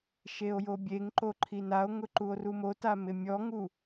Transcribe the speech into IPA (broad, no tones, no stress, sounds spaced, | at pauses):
ʃ e o̯ j o bʲ e ŋ ǃ o ǃʰ i n a o̯ ŋ ʊ ǃ u o̯ r u m o t a m ɪ mʲ ɔ ŋ u